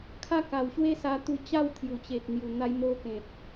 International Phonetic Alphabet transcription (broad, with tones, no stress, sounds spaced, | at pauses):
kʰ a˦ k a˨˩ w ɕ w e˦ s a˧ t̪ u˧ t͡ɕ a˥˧ w t̪ʰ j u˨˩ t͡ɕ e˨ t̚ n̪ j u˨˩ n̪ a˧ j m o˧ k ẽ˨ t̚